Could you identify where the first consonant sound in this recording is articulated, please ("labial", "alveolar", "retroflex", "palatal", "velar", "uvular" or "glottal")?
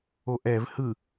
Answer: glottal